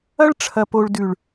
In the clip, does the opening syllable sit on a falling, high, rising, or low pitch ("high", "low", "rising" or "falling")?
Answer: high